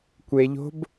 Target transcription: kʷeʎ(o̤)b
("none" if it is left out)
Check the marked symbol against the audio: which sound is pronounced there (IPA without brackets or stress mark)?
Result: o̤